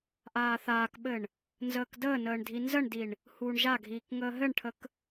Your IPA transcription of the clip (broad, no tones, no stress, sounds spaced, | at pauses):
ʔ aː θ aː k ɓ ɘ ɳ | n z əː k d əː n əː ɳ dʱ i n z ə ɳ d i ɳ | h uː ɳ ʒ a ɡʱ iː k ŋ əː ɦ ɘ ɳ ʈʰ ə k